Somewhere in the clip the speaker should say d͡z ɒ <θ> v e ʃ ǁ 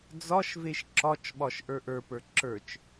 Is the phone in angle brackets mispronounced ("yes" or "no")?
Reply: yes